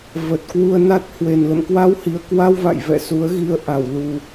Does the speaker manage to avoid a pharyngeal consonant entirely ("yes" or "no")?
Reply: yes